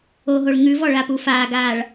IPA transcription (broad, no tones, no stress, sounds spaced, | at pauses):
o ɦ o ɭ ŋ ʉ v ɔ ɭ a p u f aː ɡ aː ɭ